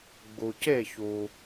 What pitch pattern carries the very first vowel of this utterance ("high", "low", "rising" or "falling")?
low